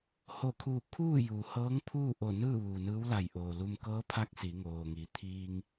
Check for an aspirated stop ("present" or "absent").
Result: present